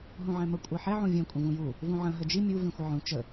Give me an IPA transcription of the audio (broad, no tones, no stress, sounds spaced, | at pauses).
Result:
ɦ ũ ʕ ɛ̃ m ə kʷʼ ɜ ħ ɛ ʕ ũ vʲ ɛ̃ kʷʼ ə̃ v ũ j u | v ũ ʕ ə̃ ɦ ə d͡ʒ i mʲ u v ĩ xʷ ə ʕ ũ t͡ʃ ə